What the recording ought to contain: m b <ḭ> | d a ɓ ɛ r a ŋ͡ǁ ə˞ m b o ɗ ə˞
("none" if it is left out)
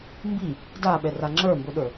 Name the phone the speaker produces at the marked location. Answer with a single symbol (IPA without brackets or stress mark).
i